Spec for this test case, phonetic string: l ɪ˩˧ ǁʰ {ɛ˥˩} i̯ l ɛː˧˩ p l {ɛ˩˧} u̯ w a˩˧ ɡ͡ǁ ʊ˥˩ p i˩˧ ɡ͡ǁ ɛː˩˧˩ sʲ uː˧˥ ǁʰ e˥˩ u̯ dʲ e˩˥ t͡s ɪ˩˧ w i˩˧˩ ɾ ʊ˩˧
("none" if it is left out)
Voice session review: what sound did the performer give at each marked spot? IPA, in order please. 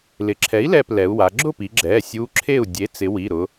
ɛ˩˥, ɛ˩˧

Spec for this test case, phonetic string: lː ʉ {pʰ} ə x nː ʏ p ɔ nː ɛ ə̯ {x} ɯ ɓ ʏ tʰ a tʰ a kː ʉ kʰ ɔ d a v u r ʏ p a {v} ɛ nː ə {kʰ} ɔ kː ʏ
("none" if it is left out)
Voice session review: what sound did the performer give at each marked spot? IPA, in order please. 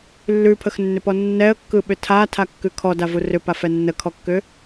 pʰ, kː, f, kʰ

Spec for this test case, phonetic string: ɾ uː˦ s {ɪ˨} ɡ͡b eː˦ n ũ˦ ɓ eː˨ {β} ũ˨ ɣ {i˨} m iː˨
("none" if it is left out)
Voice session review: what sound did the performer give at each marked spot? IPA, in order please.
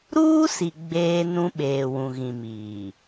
i˨, w, ĩ˨

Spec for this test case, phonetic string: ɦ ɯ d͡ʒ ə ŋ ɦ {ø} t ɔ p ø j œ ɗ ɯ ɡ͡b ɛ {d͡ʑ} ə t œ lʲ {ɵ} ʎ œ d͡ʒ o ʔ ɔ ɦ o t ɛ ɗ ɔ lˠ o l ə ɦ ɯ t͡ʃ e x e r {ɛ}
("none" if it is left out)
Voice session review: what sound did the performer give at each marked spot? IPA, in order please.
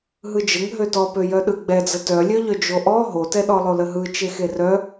ø, d͡z, œ, œ

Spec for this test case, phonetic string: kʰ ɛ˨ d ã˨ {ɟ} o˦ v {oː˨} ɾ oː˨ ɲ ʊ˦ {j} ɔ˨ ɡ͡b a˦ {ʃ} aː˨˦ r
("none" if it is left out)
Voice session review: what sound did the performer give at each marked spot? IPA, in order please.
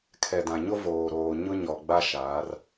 ɲ, oː˨, ɲ, ʃ

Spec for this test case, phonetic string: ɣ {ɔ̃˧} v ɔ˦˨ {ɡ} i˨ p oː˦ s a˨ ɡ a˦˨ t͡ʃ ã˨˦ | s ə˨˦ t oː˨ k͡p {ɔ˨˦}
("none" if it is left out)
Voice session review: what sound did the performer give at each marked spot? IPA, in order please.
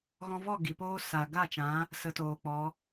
ɔ̃˧, ɡ, ɔ˨˦

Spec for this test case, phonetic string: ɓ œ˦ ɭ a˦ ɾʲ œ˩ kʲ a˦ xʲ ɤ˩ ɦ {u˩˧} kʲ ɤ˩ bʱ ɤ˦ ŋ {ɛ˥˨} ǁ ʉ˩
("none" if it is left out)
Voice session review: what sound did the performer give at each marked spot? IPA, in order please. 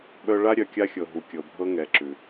u˩, ɛ˩˧

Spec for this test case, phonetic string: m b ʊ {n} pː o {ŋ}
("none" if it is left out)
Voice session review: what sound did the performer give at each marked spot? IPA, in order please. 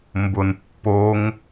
n, ŋ

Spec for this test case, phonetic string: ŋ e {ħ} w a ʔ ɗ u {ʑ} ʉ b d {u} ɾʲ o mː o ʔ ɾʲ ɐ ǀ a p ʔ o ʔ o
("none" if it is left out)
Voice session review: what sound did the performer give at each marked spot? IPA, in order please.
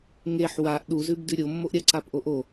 ħ, z, ʉ

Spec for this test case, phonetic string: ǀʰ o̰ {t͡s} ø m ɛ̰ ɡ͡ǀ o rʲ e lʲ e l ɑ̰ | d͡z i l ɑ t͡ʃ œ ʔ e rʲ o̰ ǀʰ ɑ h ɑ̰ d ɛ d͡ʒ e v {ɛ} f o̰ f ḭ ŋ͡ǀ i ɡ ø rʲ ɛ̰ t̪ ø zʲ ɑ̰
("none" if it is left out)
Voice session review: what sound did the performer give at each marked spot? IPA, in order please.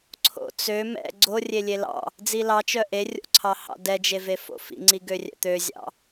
t͡s, e

